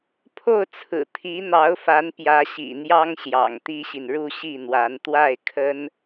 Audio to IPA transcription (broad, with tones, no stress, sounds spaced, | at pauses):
pʰ o˥˩ ʊ̯ t͡sʰ ɹ̩˨˩ t̪ʰ i˧˥ n̪ ɑ˧˥ ʊ̯ f a˧˥ n p j ä˧˥ ɕ ḭ˨˩ n̪ j ɑ˥ ŋ ɕ j ɑ̰˨˩ ŋ t̪ i˥ ɕ i˨ n ɻ u˥˧ ɕ i˥˩ n̪ w a˧˥ n t̪ w a˥˩ ɪ̯ kʰ ə˥ n